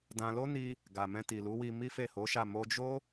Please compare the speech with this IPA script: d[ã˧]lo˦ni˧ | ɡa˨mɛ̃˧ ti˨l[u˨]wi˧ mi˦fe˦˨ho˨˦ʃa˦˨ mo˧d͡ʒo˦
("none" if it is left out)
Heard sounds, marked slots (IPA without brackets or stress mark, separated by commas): ã˧, u˨˦